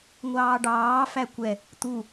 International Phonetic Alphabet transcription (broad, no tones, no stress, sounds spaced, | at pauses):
ŋʷ ɑː ɖ ɑː f æ kʷ ɛ | t̪ u